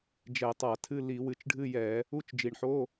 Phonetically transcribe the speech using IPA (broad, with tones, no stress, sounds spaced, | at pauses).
d͡ʒ ɛ˧˩˧ tˤ a˧˩˧ tʰ ɨ˧˥˧ l i˧˩˧ w ɨ˨˩ t͡ʃ ɖʱ ɨ˧˥˧ j ɛ˧˩˧ | u˧˥˧ t͡ʃ d͡ʒ i˨˩ ɳ ħ o˧˥˧